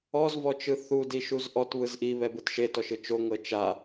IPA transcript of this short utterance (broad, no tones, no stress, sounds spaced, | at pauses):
ɔ z v ɔ t͡ʃ ɯ θ u d i ʃ u z ʔ ɔ t β ɯ z ʔ i β ɛ b ɯ t ʃ e t ɔ ʃ ɯ t͡ʃ o ŋ ɤ t͡ʃ a